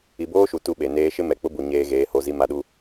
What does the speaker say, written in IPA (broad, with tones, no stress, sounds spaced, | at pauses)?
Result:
i˨ b oː˦ ʃ u˨ t u˦ ɓ e˨ n eː˦ ʃ ɪ˦ m ɛ˨ k͡p ʊ˦ b u˨ ɲ eː˦ ɣ eː˨˦ h o˦ z i˦ m a˦ ɗ u˦